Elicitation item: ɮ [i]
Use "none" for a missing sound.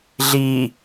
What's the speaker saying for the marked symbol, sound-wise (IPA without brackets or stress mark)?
i